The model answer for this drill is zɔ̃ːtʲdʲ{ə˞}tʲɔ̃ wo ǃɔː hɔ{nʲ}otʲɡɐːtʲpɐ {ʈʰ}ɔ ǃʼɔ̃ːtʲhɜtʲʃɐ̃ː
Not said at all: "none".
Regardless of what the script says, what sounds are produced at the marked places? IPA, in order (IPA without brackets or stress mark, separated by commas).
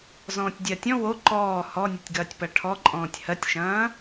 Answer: ɜ, nʲ, ʈʰ